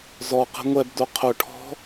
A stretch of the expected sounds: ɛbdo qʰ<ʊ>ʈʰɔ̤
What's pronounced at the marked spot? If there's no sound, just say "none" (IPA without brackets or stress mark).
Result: ʊ